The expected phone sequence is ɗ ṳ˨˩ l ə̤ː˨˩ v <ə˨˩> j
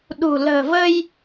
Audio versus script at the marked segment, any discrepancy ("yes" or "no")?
yes